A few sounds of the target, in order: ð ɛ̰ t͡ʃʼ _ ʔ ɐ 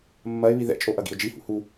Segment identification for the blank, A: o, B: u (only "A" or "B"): A